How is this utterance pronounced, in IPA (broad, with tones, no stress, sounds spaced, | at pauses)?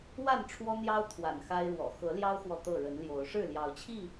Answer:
w a˥˨ n ʈ͡ʂʰ w ɔ˦ n̪ j ɑ˦ ʊ̯ t̪ʰ w a̰˨˩ n x a˦ ɪ̯ ɻ w ɔ̰˨˩ x ɤ˨˦ l j ɑ˦ ʊ̯ x w ɔ˨ t̪ ɤ˥˨ ɻ ə˨˦ n l j o˨˦ ʊ̯ ʂ ɻ̩˥˨ l j ɑ˨˦ ʊ̯ t͡ɕʰ i˥˨